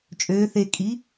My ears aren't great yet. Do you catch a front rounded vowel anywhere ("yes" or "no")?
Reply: yes